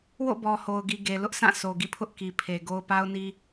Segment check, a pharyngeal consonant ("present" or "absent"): absent